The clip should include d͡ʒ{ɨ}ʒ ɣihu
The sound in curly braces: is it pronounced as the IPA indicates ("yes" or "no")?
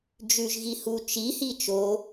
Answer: no